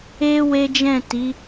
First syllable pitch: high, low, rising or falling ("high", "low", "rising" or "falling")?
high